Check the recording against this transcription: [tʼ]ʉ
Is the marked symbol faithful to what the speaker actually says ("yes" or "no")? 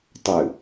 no